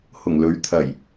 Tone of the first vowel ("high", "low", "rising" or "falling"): low